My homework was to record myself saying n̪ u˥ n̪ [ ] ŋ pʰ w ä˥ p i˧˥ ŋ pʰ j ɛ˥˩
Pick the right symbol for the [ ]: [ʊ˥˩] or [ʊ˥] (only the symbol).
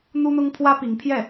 ʊ˥